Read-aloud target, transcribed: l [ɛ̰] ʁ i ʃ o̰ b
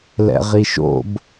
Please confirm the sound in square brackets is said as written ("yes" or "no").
yes